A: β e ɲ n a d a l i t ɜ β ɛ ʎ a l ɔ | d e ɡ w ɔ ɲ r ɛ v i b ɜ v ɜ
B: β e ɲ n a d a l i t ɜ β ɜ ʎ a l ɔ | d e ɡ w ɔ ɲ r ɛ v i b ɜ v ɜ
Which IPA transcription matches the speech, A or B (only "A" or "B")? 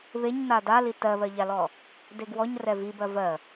B